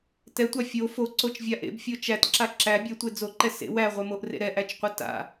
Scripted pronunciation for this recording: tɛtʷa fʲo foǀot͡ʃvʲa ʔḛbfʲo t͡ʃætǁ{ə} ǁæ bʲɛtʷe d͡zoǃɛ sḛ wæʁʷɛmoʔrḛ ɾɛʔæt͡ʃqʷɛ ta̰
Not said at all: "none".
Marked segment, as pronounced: a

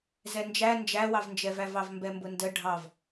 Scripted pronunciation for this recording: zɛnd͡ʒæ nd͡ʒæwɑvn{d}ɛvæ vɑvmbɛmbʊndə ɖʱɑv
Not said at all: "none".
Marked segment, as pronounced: d͡ʒ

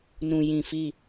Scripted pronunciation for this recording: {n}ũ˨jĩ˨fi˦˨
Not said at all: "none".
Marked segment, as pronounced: n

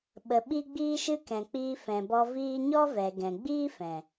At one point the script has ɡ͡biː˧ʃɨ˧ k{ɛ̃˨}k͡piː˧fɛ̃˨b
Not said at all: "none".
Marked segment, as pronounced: ɛ̃˨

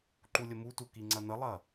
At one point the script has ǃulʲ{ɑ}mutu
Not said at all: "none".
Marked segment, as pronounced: ə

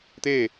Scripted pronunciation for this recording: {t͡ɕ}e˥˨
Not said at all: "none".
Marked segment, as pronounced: t̪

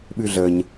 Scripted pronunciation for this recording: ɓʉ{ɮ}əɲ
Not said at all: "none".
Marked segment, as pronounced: ɮ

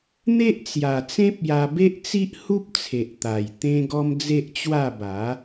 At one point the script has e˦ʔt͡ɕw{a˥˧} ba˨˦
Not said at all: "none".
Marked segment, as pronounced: a˥˧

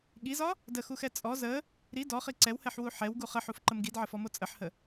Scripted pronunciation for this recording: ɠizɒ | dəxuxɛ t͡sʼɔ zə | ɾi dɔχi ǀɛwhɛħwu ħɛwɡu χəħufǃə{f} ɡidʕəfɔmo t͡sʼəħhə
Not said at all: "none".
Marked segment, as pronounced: m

